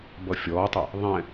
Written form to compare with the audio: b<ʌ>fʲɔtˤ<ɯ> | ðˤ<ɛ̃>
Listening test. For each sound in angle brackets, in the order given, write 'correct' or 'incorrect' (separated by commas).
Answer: correct, incorrect, correct